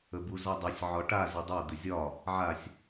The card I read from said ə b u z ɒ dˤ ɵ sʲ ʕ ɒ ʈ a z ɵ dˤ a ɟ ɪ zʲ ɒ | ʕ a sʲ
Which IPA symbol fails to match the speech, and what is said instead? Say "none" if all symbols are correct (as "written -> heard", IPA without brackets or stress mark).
ɟ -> d̪